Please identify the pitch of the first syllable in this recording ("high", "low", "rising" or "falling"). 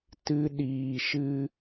high